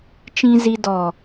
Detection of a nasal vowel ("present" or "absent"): present